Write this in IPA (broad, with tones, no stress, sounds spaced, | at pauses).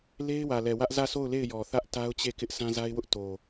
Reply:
l e˦ ɪ̯ w ä˨ l ɛ˨ w ä˦ ʔ z ä˦˨ sʰ o˦˨ ʊ̯ l e˦˨ ɪ̯ j ɔ˨ θ ä˦ ʔ t a˦ ʊ̯ t͡ɕ e˦˨ k ɪ˦ ʔ sʰ ã˦ z a˦ ɪ̯ w ʊ˦ ʔ t o˨